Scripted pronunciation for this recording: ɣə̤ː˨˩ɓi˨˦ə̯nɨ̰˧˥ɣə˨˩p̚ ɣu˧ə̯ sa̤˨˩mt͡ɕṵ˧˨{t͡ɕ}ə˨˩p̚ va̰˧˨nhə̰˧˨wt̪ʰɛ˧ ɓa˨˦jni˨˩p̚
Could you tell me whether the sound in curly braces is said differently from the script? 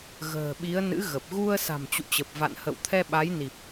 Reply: no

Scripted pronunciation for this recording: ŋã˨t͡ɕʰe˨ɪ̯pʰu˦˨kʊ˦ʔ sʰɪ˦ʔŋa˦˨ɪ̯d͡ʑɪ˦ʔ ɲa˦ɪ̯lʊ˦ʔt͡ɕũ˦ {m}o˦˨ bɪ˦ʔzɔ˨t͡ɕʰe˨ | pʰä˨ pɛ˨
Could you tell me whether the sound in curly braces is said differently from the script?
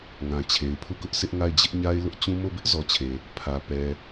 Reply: no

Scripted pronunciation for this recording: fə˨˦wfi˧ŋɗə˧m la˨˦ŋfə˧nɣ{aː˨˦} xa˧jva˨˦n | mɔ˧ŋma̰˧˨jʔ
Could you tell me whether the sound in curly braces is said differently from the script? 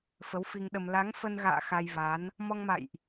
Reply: yes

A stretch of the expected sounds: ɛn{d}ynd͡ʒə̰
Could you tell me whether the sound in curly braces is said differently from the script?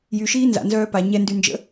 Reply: no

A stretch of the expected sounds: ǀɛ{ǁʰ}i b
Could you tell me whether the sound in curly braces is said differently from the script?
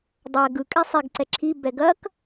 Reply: no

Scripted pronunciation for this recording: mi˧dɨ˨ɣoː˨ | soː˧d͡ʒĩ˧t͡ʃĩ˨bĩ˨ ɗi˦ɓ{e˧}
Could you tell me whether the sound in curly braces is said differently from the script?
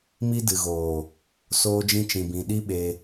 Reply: no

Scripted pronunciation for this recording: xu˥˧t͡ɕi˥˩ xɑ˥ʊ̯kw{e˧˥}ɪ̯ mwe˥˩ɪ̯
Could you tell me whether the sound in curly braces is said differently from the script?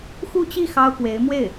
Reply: no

